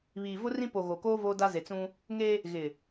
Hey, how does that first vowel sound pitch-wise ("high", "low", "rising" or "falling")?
low